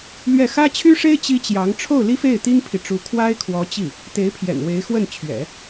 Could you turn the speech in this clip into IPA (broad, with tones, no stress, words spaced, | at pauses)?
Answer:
lɥɛ˥˩ xä˥ t͡ɕʰy˥ʂe˥ɪ̯ t͡ɕi˥t͡ɕjɑ˧˥ŋ ʈ͡ʂʰo˥˩ʊ̯li˥fe˥˩ɪ̯ t̪i˥ŋpʰi˨ʈ͡ʂu˧˥ kʰwa˥ɪ̯kʰwɔ˧˥t͡ɕi˥˩ | t̪e˧˥ɪ̯pʰjɛ̰˨˩nwe˧˥ɪ̯ xwə˥˩n t͡ɕʰɥɛ̰˨˩˦